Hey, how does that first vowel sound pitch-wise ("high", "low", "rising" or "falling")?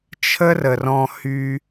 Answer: high